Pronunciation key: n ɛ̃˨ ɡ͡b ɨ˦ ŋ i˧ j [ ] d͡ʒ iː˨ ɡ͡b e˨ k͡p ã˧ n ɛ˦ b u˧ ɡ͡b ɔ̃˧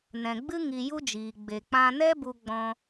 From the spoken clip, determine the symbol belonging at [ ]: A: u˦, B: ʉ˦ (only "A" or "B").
A